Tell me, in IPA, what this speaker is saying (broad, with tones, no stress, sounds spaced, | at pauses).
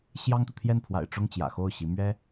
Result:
ɕ j ɑ˥ ŋ t̪ u˨ t̪ʰ j ɛ˥˩ n pʰ w a̰˨˩ ɪ̯ ʈ͡ʂ ʊ˥˩ ŋ t͡ɕ j ä̰˨˩ x o˥˩ ʊ̯ ɕ i˧˥ m ɥ ɛ˥